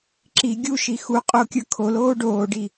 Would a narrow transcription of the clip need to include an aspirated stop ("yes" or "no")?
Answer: yes